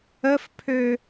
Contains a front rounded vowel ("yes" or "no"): yes